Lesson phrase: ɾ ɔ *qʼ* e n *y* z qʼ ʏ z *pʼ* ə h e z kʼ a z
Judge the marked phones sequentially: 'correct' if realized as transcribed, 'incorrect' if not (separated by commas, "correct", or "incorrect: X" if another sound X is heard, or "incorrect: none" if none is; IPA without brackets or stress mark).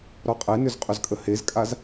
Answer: correct, incorrect: ʏ, incorrect: kʼ